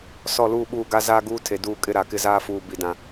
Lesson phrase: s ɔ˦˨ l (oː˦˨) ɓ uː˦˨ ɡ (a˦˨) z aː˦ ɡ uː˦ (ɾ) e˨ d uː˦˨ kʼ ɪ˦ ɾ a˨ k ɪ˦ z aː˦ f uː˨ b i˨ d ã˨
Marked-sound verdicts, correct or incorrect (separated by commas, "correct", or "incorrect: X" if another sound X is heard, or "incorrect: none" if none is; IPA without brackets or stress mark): incorrect: uː˦˨, incorrect: a˦, incorrect: tʰ